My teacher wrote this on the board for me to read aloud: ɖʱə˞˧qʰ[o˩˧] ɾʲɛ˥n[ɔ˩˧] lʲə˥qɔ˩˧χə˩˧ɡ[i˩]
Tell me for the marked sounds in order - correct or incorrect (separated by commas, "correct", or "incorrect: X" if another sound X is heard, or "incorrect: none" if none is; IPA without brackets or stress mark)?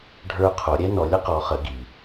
correct, correct, correct